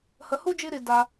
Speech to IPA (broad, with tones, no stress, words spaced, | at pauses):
hə˧hu˥ d͡ʒi˥ɾi˧ da˧